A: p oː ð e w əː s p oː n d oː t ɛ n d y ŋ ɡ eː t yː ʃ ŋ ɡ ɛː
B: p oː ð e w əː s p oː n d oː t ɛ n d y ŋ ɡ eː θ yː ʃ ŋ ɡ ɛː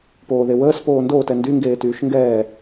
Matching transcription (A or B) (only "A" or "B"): A